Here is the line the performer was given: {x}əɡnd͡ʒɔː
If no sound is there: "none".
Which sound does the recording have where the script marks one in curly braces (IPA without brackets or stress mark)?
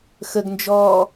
x